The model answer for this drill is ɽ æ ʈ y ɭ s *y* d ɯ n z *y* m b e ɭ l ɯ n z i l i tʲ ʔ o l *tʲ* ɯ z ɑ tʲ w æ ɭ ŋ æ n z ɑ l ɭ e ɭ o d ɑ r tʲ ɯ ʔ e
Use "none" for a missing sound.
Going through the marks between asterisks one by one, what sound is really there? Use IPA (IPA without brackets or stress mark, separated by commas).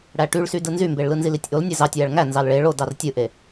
y, y, nʲ